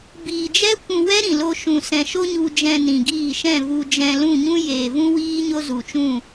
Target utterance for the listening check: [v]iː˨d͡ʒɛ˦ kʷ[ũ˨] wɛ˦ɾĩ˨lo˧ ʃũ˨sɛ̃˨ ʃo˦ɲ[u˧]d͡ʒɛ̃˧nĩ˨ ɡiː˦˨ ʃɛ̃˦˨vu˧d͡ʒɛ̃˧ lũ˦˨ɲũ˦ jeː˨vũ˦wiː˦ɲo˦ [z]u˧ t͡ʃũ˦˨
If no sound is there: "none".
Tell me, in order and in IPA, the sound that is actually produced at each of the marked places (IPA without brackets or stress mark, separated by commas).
b, ũ˧, u˧, z